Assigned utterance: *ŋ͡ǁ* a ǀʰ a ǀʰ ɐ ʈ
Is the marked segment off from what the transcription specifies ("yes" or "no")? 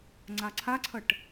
yes